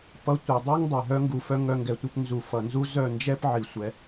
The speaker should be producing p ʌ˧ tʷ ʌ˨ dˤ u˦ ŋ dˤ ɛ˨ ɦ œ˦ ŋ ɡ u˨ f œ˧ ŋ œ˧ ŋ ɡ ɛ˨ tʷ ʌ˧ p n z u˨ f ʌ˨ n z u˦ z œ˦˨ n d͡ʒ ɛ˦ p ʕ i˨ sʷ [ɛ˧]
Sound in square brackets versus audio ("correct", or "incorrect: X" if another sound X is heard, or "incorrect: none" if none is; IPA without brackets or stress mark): correct